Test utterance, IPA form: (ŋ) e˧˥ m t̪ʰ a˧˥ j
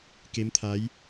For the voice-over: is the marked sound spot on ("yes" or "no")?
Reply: no